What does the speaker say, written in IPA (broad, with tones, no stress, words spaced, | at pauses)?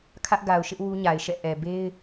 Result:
kʰä˦ʔɡa˨ʊ̯ʃɪ˦ʔ wu˦ɲa˨ɪ̯ʃɛ̰˦˨ ʔɛ˨ be˦ɪ̯